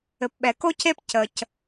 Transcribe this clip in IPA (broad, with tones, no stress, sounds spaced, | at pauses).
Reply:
ɘ˩ p ɓ ɛ˩ k o˦ c e˦ p c ə˩ c